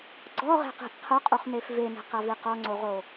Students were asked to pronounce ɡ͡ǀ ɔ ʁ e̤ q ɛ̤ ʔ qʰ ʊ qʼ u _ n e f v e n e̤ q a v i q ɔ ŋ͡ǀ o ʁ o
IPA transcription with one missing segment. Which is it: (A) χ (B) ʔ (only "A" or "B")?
A